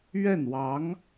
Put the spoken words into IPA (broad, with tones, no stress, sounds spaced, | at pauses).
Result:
ɥ ɛ˥˩ n w ɑ˧˥ ŋ